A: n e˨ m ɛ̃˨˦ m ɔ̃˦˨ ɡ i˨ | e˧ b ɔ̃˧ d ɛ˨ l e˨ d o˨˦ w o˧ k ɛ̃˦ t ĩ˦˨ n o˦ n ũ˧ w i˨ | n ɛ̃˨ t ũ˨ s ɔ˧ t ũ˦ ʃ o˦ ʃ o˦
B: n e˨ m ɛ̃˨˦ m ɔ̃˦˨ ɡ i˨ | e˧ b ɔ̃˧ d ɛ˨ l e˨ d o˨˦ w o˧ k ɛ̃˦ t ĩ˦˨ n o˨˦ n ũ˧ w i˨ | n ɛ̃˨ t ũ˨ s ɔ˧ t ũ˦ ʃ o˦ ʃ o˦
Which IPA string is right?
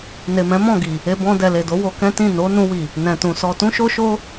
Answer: B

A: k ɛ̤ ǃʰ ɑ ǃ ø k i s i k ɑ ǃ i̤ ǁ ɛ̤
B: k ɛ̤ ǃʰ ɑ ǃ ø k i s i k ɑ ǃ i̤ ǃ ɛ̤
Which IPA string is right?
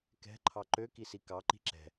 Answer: A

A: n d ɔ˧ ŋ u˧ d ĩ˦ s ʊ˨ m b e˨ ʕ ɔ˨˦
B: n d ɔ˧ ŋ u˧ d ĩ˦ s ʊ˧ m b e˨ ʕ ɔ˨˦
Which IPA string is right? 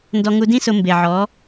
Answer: B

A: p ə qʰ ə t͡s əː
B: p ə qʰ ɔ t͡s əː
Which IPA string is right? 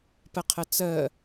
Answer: A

